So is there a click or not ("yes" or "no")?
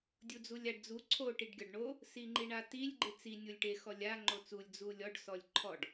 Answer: yes